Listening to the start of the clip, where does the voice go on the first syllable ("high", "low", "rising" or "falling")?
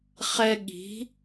high